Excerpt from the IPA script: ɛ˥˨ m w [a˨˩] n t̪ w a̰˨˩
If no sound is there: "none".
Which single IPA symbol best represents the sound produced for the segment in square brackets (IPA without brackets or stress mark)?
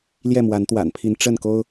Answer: a˨˦